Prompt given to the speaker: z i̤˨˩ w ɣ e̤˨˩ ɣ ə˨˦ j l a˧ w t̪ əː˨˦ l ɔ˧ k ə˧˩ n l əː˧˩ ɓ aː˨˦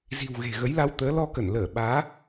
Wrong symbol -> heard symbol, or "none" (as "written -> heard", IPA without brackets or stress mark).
none